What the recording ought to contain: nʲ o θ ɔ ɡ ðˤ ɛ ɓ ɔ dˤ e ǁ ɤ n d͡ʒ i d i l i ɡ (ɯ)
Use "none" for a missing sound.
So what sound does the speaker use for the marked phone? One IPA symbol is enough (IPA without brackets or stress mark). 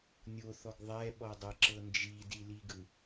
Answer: ɯ